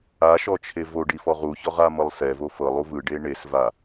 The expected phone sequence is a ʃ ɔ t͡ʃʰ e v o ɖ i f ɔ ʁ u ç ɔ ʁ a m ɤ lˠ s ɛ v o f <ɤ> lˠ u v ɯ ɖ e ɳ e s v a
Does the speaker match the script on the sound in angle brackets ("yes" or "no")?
yes